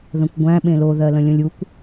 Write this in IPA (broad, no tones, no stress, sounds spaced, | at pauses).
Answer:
ð ə̃ kʷ ɡʷ æ̃ ɓ ẽ l o ð ɜ l ə̃ lʲ õ lʲ u kʷ